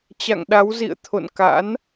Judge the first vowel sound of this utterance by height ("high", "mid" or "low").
low